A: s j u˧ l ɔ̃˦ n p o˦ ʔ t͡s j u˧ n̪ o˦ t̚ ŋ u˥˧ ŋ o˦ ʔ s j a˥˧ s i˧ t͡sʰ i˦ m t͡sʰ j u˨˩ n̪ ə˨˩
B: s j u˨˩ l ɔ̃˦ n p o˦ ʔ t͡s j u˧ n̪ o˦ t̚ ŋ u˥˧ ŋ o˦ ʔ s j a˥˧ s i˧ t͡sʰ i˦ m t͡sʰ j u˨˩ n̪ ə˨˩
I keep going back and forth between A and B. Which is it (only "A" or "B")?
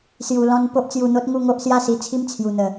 A